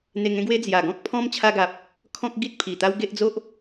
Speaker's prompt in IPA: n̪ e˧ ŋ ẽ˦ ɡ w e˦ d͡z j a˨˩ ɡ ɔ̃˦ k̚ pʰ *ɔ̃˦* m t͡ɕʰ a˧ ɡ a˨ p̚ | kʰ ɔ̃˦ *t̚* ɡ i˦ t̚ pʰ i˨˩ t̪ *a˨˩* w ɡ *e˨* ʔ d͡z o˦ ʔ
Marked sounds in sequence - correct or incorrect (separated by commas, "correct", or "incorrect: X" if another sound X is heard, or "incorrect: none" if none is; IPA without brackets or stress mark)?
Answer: correct, incorrect: k̚, incorrect: a˦, incorrect: e˦